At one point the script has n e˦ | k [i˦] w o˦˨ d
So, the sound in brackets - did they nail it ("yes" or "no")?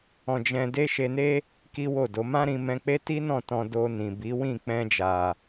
yes